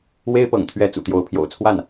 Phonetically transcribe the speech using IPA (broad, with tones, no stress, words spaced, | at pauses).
we˥ɪ̯pɤ̰˨˩ŋt̪ʰɥɛ˧˥ t͡sṵ˨˩t̪jo˧˥ʊ̯pʰjo̰˨˩ʊ̯ t͡sʰwa˥˩n